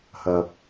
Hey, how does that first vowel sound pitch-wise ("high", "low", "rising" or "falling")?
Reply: low